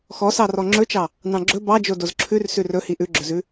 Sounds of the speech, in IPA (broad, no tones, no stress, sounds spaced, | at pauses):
x ɔ s ɑ r ɔ ŋ͡ǁ ɵ t͡ʃ ɑ | n ɑ̃ ɡ͡ǁ ɵ b ɑ d͡ʒ o d o z ǁʰ ʉ r s ʉ r ɵ h i ʔ ʉ ɡ͡ǁ ɵ z ʉ